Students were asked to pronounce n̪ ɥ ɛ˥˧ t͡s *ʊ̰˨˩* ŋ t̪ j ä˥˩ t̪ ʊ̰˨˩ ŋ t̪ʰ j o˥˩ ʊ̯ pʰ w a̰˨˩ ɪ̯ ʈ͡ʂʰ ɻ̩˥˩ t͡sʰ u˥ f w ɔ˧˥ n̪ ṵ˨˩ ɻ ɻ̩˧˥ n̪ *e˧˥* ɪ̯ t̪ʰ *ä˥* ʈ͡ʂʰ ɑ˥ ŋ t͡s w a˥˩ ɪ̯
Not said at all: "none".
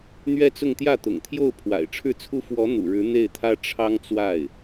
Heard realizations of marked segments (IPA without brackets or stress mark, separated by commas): ʊ˥˧, e˥˩, ä˥